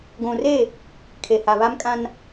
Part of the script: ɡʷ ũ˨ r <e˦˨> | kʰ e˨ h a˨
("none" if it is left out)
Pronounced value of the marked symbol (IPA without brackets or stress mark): e˦˨